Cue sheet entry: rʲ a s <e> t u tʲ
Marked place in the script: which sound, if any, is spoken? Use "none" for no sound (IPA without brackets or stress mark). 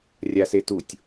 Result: e